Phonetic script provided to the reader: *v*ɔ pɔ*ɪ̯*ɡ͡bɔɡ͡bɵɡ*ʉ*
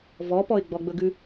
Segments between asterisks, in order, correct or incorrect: correct, correct, correct

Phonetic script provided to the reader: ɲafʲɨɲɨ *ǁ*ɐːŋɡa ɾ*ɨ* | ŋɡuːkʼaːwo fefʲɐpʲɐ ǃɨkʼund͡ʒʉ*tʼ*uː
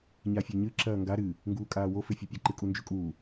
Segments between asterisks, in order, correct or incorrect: correct, correct, incorrect

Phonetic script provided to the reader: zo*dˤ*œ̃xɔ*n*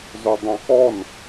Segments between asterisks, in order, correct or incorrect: correct, correct

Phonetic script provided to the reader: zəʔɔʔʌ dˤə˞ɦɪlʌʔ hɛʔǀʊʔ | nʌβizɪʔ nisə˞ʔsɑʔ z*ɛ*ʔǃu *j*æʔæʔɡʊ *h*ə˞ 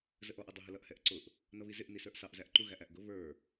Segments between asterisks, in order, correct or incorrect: incorrect, incorrect, incorrect

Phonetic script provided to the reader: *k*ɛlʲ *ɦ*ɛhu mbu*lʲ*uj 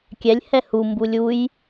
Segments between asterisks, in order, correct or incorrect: incorrect, incorrect, correct

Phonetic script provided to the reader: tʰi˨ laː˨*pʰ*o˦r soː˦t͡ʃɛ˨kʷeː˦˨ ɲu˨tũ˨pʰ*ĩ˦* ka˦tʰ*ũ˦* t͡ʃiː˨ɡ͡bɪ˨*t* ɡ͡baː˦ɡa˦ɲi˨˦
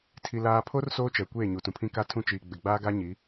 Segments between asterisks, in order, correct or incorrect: correct, correct, correct, incorrect

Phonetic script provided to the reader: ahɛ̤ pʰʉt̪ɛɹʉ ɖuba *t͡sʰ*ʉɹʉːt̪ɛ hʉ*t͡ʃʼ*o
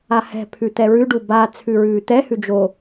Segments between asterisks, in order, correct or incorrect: correct, incorrect

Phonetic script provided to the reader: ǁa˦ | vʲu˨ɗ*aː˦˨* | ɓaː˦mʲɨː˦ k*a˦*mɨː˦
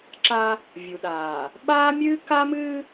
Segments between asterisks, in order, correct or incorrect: incorrect, correct

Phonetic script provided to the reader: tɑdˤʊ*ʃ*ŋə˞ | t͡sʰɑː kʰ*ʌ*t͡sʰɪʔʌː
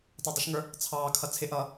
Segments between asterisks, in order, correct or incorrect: correct, correct

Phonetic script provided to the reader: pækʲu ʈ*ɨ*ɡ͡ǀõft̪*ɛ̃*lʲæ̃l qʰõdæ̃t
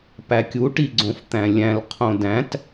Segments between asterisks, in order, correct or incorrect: incorrect, incorrect

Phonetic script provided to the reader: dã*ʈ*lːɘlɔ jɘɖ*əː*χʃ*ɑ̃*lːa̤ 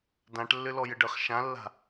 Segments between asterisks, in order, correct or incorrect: correct, correct, incorrect

